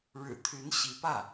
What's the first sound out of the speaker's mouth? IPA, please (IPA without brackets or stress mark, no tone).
ɻ